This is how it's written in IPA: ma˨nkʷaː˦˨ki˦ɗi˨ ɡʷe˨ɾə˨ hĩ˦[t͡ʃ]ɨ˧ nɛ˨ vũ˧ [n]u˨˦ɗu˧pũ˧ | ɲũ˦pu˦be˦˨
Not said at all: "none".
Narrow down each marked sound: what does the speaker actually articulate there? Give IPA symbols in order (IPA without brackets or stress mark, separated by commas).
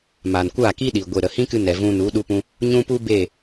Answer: k, n